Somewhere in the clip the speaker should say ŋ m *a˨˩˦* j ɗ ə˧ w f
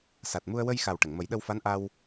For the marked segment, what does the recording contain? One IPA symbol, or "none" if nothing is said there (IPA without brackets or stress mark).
ə˨˩˦